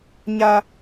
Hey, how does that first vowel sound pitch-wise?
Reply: high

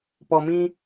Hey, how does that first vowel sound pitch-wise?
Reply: low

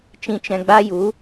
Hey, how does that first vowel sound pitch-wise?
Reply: low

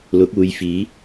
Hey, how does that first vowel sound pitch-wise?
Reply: rising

